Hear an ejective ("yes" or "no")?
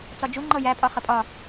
yes